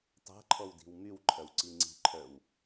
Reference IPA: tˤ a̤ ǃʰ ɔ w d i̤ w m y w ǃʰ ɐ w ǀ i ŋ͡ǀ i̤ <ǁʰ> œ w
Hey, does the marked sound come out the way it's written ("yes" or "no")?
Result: no